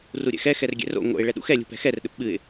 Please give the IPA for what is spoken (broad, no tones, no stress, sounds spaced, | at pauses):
r u ɾʲ ɛ̰ x ɛ x ɛ r ɡʲ ɛ̰ r o̰ ŋ o̰ ɪ̯ ɭ ɛ ɗ ṵ x ɛ lʲ ṳ p ɛ̤ x ɛ r ɗ ɘ p ɓ ɨ ɪ̯